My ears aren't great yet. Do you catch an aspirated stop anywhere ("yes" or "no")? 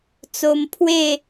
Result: yes